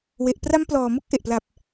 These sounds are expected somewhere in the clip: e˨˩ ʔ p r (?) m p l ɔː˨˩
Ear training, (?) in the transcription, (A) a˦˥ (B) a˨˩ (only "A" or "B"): A